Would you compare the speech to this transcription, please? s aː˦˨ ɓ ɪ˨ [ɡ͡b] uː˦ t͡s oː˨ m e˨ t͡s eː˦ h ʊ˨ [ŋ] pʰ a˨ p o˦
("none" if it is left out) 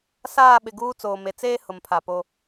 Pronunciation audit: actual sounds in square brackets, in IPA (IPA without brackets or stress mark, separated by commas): ɡ, m